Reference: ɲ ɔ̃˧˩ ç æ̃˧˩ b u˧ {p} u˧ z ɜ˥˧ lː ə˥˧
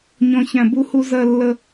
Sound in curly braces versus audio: incorrect: h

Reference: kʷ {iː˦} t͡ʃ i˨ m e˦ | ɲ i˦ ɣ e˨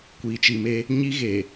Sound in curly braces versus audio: incorrect: iː˨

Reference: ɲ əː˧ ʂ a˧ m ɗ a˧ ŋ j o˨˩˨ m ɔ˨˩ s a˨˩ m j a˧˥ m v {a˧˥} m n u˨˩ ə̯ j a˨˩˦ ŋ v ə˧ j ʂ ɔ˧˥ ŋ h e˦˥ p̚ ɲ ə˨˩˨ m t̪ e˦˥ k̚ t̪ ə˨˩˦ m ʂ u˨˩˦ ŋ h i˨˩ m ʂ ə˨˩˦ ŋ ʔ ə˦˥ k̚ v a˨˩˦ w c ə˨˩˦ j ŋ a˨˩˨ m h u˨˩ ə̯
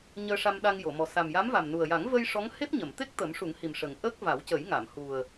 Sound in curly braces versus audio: incorrect: a˨˩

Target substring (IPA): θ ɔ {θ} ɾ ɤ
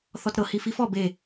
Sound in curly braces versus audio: incorrect: t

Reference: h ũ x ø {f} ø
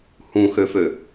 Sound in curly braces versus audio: correct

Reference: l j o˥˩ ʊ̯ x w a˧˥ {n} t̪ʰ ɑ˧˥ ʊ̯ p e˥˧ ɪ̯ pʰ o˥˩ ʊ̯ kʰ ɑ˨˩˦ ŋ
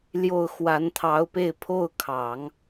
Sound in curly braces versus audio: correct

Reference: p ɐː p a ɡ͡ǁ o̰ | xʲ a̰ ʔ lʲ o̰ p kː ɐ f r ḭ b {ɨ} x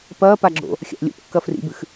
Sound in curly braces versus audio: correct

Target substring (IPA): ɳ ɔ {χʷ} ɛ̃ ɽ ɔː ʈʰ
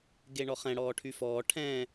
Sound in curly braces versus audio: incorrect: χ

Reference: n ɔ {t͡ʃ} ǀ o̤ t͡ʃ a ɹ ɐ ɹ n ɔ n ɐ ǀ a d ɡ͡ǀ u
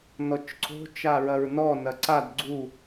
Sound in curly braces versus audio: correct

